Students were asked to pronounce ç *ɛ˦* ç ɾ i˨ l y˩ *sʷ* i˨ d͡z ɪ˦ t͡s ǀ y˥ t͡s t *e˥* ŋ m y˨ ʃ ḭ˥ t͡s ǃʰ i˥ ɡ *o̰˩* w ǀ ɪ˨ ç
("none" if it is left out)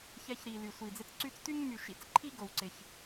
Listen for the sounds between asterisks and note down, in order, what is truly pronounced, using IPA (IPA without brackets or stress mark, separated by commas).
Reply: ɛ˦, sʷ, y˥, o˩